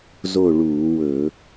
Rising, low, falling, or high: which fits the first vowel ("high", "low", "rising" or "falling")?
falling